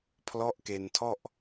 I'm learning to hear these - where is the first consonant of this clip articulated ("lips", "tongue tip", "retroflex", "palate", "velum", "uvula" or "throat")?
lips